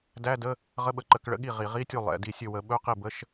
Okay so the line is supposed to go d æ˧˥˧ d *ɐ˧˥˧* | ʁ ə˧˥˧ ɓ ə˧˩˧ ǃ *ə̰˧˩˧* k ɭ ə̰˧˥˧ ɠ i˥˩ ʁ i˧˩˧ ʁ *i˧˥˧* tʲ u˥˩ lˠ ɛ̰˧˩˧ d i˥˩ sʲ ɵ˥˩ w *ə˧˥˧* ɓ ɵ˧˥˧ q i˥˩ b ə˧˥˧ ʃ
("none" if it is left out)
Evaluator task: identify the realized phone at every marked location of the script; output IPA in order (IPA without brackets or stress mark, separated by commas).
ə˧˥˧, ə˧˩˧, i˧˥˧, ə˧˩˧